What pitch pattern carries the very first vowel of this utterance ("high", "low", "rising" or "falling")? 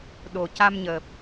low